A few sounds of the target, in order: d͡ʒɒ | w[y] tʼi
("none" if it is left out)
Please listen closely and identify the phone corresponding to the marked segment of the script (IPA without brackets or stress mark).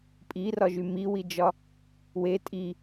e